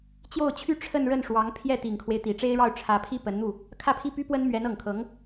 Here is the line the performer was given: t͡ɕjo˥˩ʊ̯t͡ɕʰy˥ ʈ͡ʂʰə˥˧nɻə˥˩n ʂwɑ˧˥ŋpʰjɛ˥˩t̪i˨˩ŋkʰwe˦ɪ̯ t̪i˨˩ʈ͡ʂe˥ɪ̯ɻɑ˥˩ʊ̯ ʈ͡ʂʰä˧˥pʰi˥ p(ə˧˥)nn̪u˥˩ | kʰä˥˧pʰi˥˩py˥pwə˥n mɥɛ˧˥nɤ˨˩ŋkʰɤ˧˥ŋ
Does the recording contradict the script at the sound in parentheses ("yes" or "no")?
no